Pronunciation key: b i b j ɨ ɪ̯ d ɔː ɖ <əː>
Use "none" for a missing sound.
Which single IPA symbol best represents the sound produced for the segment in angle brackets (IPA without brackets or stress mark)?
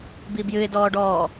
ɔː